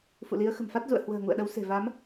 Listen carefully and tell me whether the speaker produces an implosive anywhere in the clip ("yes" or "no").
yes